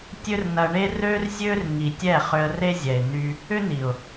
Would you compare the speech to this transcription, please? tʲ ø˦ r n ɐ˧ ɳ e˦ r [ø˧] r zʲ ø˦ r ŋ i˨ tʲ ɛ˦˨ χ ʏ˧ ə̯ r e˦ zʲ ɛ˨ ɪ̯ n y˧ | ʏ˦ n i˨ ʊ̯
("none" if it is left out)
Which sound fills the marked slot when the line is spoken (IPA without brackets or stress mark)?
ø˦